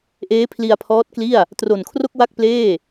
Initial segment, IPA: ʔ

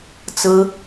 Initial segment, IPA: t͡s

